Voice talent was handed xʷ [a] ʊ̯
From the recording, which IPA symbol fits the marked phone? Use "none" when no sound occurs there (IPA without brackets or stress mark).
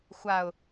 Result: a